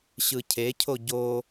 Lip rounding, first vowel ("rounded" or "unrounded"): unrounded